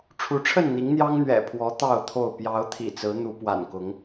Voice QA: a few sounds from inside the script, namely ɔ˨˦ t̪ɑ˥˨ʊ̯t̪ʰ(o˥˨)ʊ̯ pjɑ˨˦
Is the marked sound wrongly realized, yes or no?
no